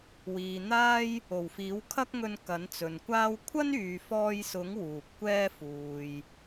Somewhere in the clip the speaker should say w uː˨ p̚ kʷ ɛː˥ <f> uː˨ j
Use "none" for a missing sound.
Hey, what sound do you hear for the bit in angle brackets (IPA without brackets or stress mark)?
f